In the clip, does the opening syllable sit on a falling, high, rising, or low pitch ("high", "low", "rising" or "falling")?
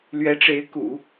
rising